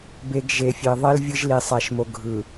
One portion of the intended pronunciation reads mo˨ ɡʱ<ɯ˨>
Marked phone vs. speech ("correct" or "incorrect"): correct